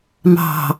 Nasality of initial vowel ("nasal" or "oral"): oral